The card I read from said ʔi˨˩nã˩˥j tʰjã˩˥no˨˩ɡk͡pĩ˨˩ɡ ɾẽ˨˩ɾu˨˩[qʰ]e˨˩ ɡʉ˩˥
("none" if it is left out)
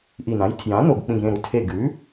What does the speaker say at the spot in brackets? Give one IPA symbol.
tʰ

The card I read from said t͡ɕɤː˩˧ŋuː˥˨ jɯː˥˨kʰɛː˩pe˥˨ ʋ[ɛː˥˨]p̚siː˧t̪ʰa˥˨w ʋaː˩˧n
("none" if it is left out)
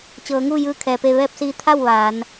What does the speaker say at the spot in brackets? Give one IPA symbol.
ɛː˥˨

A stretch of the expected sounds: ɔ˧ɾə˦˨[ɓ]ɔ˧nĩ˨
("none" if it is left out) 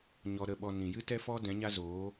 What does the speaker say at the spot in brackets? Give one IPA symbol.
ɓ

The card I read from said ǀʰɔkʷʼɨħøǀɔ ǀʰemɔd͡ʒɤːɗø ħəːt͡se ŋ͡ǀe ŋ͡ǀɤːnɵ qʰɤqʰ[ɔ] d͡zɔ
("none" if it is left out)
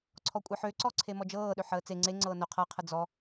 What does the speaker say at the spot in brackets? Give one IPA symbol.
ə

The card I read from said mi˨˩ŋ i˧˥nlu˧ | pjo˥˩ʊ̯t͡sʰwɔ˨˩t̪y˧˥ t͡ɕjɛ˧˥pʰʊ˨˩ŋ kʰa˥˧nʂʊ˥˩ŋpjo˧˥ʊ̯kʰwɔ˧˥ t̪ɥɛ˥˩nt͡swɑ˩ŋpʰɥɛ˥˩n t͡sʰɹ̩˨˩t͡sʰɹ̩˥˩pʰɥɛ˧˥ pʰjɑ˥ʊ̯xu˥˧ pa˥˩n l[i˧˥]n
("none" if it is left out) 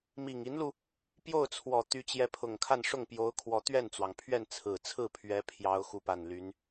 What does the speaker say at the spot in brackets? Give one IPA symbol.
y˧˥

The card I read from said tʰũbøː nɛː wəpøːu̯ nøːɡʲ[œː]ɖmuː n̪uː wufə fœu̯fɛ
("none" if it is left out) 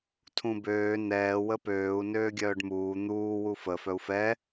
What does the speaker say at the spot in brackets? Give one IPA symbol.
œː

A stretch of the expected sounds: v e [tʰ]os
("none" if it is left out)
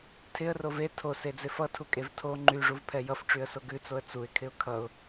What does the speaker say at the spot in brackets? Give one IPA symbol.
tʰ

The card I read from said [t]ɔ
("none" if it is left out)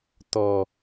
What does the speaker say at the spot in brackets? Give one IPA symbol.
t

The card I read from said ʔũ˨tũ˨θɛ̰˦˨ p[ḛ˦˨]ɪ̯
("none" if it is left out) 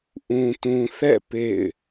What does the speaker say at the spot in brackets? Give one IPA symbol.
ḛ˦˨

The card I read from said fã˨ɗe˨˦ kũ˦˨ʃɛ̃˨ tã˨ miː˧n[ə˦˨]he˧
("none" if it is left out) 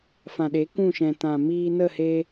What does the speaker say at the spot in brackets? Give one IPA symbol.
ə˦˨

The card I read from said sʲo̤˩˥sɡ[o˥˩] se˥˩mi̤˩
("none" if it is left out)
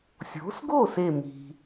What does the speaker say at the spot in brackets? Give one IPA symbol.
o˥˩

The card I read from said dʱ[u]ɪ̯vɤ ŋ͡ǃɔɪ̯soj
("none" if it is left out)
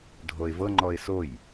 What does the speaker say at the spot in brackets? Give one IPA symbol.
o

